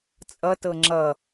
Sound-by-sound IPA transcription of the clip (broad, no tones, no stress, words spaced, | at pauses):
t͡sʼʌtɤ ŋ͡ǁʌ